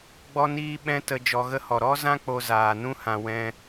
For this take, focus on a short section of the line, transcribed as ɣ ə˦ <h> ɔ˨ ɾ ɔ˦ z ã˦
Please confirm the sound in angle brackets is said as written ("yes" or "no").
yes